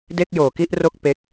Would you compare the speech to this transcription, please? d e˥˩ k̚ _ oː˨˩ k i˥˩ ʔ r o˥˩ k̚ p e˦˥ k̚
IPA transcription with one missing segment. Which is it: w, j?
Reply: j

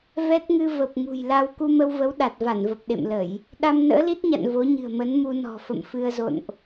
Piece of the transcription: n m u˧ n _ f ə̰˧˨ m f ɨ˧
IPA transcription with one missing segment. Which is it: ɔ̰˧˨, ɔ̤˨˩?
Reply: ɔ̤˨˩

